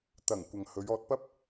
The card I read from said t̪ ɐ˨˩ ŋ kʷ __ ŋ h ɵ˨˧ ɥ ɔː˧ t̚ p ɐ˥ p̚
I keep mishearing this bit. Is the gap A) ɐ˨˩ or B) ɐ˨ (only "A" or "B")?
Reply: B